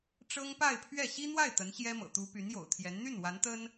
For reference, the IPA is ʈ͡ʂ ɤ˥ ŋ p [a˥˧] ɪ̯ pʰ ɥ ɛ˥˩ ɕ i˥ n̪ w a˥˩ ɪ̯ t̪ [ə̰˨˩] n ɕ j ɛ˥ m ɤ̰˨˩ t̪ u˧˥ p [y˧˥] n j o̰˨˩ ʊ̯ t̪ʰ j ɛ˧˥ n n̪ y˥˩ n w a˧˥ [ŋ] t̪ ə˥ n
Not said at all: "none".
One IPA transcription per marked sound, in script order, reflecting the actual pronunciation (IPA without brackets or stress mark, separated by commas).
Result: a˥˧, ə˧˥, y˧˥, n